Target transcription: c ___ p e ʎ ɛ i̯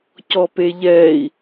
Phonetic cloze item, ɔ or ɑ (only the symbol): ɔ